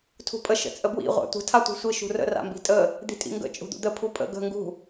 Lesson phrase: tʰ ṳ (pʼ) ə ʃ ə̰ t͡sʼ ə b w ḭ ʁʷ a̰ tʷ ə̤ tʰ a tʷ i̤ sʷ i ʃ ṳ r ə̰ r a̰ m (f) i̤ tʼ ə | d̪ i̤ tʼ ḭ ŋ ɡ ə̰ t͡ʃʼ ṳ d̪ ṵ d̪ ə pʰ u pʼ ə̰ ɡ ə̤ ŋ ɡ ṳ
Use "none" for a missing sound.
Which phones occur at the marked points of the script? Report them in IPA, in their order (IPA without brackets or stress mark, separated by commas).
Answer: pʼ, b